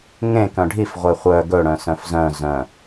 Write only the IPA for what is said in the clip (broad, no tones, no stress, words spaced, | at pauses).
ŋẽ kœ̃ɖʱif ʁʷeχʷœ ɡɵɽœ̃sœ̃f zœ̃ zœ̃